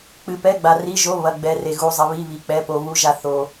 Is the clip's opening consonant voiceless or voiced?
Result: voiceless